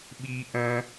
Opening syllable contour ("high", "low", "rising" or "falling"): high